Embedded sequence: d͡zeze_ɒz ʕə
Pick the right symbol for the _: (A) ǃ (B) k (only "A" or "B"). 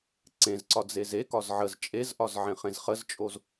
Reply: B